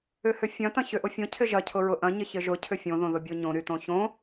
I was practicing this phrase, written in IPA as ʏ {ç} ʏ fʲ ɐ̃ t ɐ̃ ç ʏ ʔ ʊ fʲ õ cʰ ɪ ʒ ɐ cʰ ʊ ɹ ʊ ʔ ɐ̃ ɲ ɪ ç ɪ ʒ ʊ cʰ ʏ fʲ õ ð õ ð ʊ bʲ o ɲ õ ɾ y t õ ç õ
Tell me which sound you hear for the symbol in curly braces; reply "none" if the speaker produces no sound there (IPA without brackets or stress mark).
h